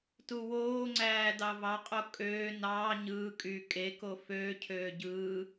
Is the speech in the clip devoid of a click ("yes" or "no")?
no